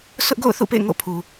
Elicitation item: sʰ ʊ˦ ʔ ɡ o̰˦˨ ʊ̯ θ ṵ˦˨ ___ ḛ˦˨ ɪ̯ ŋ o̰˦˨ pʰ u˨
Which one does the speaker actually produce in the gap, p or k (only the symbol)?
p